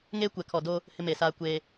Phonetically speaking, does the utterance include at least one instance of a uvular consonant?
no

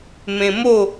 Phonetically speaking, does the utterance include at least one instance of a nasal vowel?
yes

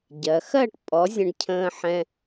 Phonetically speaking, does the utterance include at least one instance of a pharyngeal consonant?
yes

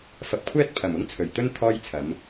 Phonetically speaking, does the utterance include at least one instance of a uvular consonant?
no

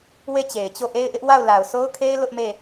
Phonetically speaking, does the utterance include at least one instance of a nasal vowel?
no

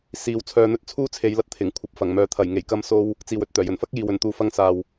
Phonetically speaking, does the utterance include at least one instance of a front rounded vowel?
yes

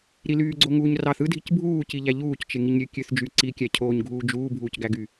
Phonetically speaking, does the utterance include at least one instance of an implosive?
no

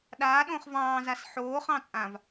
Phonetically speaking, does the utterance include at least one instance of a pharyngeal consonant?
yes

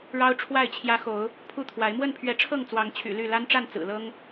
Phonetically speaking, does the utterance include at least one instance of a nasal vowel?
no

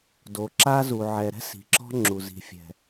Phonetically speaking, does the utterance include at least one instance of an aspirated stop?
no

